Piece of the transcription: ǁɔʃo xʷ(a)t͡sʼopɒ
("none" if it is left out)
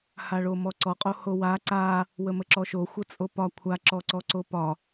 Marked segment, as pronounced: ə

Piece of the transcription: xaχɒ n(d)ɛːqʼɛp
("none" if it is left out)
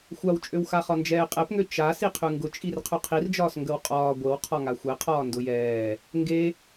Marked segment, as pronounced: d͡ʒ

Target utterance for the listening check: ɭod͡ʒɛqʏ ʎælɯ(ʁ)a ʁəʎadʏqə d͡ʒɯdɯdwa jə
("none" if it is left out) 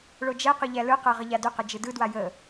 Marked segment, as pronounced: q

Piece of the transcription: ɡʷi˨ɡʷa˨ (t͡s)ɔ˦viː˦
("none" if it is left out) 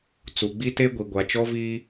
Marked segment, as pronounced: t͡ʃ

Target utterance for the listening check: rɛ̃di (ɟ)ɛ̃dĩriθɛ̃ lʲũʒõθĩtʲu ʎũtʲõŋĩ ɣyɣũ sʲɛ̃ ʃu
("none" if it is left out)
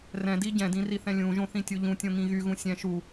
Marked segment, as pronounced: ɟ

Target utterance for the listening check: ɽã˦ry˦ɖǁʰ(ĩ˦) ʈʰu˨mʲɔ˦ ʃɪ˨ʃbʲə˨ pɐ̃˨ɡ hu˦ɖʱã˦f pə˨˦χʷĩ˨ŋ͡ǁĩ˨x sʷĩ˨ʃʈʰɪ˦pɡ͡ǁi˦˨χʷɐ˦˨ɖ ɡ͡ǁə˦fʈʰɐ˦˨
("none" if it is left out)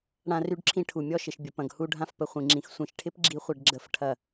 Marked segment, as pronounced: ĩ˦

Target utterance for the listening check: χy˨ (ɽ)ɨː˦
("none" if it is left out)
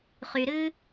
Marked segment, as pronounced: ɾ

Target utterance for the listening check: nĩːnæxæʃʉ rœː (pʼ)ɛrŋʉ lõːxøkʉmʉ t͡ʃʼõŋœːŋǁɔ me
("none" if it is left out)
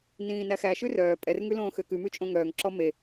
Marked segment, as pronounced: pʼ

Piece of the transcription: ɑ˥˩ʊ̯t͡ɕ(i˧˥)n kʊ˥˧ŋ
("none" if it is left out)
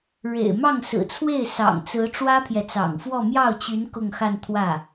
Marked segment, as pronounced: y˧˥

